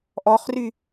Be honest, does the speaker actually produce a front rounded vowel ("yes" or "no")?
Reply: yes